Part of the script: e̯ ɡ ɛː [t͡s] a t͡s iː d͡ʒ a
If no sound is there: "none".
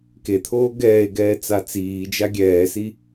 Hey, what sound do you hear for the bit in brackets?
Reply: t͡s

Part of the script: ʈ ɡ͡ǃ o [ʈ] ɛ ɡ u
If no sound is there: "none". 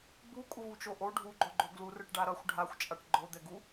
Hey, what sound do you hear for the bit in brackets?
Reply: d̪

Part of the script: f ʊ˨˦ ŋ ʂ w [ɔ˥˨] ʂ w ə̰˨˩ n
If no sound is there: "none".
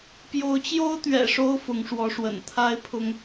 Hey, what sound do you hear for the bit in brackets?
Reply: ɔ˨˦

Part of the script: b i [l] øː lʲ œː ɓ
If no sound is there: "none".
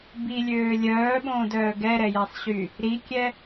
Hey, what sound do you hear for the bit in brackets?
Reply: lʲ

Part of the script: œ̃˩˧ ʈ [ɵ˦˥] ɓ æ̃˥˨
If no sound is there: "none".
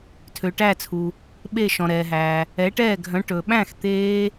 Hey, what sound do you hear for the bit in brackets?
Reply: ɵ˩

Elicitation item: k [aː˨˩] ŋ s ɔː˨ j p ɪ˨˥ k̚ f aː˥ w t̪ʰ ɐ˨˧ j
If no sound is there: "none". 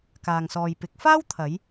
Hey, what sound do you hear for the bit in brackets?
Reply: aː˨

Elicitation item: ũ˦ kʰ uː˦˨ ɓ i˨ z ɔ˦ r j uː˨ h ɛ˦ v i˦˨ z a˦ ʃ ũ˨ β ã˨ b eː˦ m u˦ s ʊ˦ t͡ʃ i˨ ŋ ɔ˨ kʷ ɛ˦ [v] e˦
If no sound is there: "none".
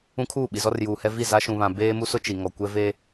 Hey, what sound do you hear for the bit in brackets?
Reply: v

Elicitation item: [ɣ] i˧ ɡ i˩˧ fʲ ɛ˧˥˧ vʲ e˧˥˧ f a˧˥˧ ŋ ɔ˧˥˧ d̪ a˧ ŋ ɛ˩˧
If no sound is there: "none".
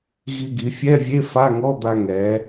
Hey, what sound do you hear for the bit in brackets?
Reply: ɣ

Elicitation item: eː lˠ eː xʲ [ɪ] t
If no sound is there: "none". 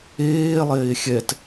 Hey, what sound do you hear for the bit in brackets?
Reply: ɛ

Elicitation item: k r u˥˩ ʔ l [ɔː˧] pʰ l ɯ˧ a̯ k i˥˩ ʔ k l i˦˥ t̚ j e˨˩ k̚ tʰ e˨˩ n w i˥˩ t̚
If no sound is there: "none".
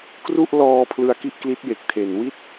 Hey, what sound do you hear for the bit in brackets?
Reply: ɔː˧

